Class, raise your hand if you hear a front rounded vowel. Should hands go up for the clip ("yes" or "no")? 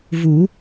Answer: no